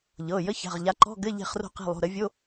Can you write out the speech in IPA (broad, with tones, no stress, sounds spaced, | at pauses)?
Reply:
ʎ ɤ˩˧˩ j ə˧˥˧ ç a̤˩˧˩ ʁ ʎ a˨˦ ǃ ɔ̤˧˥˧ ɡ ɘ˧˥˧ ʎ e̤˦˨ χ r o̤˦˨ q e̤˦˨ lˠ o̤˩˧˩ ɾ ə˨˦ vʲ o˧˥˧